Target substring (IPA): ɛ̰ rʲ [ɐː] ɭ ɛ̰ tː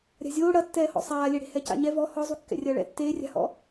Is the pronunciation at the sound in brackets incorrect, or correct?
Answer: correct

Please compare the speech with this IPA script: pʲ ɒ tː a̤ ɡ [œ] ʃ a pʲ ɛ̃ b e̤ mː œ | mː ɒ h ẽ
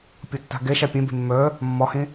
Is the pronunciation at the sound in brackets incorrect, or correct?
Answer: incorrect: ɛ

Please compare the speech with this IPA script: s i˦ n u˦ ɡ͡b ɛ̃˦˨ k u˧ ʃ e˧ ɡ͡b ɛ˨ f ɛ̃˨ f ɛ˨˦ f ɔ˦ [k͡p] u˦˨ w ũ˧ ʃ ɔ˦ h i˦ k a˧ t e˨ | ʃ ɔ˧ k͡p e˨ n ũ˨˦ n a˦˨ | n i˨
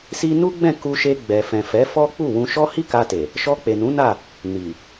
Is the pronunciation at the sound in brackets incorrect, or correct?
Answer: correct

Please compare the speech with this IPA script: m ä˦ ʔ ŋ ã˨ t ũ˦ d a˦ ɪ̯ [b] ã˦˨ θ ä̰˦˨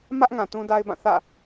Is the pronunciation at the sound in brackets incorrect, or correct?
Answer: correct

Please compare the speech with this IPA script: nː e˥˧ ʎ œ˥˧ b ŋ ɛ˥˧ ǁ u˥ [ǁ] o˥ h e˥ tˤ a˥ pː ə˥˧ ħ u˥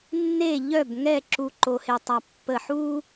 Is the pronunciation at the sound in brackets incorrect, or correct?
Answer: incorrect: ǃ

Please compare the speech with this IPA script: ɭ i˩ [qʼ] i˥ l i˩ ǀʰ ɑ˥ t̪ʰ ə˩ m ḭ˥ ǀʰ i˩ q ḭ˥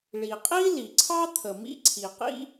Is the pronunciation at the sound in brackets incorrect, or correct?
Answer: correct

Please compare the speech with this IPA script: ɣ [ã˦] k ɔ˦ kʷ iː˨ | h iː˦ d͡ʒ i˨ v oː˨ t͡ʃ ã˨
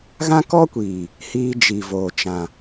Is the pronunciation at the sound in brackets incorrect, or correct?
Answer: correct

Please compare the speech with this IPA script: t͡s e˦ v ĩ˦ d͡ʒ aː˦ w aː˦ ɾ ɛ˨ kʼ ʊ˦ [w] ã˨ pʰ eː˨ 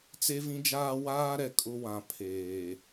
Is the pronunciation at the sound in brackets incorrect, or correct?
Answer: correct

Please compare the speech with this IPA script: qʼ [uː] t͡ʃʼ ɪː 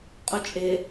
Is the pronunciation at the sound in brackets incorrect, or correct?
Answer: incorrect: u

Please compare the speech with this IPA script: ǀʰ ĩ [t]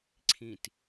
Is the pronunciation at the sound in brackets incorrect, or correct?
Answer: correct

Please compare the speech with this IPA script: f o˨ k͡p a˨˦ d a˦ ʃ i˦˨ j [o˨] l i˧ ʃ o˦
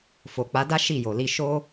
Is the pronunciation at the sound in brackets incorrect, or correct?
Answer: correct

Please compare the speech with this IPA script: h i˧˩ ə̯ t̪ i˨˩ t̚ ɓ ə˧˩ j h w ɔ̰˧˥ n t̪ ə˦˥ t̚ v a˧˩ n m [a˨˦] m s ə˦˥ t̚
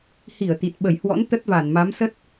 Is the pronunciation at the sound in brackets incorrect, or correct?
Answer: correct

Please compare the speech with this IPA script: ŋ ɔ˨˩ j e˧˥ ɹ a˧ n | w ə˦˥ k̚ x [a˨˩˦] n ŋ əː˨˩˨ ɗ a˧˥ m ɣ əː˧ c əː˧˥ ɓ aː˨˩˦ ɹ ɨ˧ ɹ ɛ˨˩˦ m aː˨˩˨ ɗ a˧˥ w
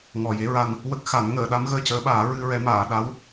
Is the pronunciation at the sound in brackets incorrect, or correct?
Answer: correct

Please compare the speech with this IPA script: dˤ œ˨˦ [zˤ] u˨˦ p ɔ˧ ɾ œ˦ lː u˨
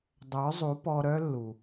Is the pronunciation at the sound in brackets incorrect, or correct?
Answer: correct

